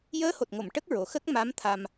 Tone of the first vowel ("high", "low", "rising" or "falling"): rising